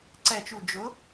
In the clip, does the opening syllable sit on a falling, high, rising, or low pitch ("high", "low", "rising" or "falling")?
low